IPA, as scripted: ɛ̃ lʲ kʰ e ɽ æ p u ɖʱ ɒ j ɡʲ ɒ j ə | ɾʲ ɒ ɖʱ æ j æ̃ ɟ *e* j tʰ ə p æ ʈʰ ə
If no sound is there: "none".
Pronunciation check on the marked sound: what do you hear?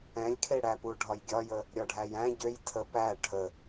ø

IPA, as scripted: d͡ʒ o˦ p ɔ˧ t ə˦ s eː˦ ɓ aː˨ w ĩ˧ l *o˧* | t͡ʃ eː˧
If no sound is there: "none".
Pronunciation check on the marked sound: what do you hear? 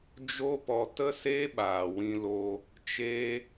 o˧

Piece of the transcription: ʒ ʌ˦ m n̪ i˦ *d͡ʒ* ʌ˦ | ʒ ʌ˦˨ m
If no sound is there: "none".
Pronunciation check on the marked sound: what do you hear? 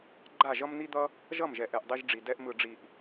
d̪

